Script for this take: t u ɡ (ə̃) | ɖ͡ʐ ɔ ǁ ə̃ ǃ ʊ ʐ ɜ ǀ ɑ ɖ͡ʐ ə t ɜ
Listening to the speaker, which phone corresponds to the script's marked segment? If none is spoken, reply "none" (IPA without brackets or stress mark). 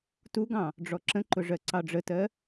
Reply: ɑ̃